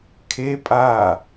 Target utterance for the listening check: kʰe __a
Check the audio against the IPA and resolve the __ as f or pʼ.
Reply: pʼ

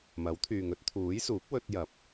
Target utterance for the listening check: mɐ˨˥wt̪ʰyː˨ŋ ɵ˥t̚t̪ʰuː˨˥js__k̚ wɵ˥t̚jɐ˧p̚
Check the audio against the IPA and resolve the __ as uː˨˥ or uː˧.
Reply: uː˨˥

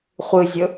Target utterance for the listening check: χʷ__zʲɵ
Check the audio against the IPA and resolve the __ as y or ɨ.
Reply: ɨ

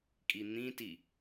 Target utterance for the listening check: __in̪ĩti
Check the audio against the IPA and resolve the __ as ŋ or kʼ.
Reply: kʼ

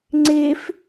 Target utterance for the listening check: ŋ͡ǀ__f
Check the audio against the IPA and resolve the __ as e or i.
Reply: e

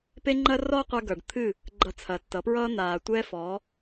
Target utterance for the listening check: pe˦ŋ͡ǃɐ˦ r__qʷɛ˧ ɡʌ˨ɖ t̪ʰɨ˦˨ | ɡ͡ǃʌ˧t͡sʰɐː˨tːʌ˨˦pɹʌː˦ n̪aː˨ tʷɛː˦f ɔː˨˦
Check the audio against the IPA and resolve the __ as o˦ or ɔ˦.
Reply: ɔ˦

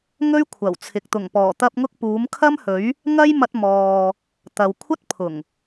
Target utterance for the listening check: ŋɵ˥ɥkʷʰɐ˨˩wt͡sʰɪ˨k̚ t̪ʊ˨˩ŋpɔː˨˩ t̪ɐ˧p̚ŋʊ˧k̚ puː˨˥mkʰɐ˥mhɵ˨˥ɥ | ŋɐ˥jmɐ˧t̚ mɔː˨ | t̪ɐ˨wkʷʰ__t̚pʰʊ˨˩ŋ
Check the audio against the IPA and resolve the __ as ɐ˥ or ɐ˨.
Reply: ɐ˥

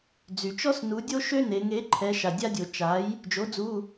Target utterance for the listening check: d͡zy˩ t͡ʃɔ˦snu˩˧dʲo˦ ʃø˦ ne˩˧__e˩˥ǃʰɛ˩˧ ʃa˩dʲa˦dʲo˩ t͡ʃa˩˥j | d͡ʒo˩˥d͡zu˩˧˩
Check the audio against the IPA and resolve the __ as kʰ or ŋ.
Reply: ŋ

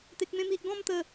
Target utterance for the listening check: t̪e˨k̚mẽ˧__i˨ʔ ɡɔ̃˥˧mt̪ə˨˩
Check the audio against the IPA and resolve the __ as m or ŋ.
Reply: m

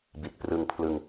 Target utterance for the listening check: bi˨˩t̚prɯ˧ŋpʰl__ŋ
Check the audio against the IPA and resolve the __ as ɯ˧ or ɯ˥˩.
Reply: ɯ˧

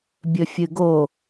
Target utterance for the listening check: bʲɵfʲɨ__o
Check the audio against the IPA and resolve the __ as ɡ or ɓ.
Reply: ɡ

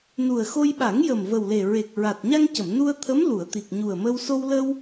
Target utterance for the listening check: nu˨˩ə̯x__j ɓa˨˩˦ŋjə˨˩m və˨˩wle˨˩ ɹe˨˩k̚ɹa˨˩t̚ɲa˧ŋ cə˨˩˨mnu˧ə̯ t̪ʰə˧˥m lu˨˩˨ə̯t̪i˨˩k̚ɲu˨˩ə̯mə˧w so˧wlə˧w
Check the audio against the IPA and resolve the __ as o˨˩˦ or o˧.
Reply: o˧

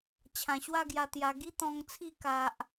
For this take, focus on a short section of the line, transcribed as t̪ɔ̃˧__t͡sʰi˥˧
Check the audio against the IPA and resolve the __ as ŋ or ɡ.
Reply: ŋ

